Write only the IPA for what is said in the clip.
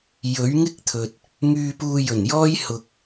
j ɵ˨˥ ɥ ŋ ɪ˥ k̚ t̪ʰ ɵ˨ t̚ | ŋ yː˧ p uː˧ j ɵ˨˩ n j ɔː˥ j h ʊ˧ k̚

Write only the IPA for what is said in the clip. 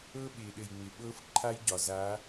ɤ˦ ɓ ɪː˨ ɗ ɘ˨ j ŋ͡m ɪ˨ ɓ ɤ˦ f ǃʰ a˦ j ɟ ɒ˨ z a˨˦

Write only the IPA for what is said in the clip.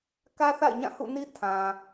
k ä˦ θ a̰˦˨ ɪ̯ ɲ ã˦˨ h ṵ˦˨ n i˦ tʰ ã˨

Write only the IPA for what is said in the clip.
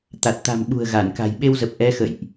t̪ a˨˩ t̚ t̪ a̤˨˩ m ɓ ṳ˨˩ ə̯ ɣ a˧˩ n k a̤˨˩ j ɓ e˧ w z ə˨˩ p̚ ʔ ɛ˨˦ x ə̰˧˨ j ʔ

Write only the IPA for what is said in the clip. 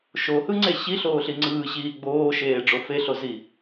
ʃ o h ɯ ŋ͡ǀ e ɕ i ɬ oː ɬ i ŋ͡ǀ ɯː ɕ iː ɡ͡b oː ʃ eː ɖ͡ʐ o f e ɬ o z i

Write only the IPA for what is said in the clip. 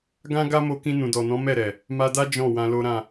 ɡ ã˦ ɡ a˦ m o˧ k ĩ˧ n ũ˨ d ɔ˨ n ɔ̃˨˦ m ɛ˦˨ ɾ ɛ˨ | m a˧ d a˦ d͡ʒ ɔ̃˦˨ w ã˧ l o˦ ɾ ã˦˨

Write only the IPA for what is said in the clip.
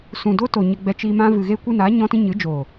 s ũ˨ d o˦ t o˨ ɲ ə˧ ɡ͡b ɛ˧ t͡ʃ i˧ m ã˦ v ɨ˨ ɣ e˧ kʷ ɨ˧ n aː˨˦ ɲ ɔ̃˦ t ĩ˦ ɲ ɨ˨˦ d͡ʒ oː˨

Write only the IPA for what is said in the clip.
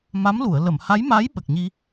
m a˧˥ m l u˨˩˨ ə̯ l ə˨˩˨ m h a˧˥ j m aː˧˥ j ɓ ə˨˩ k̚ ɲ i˧

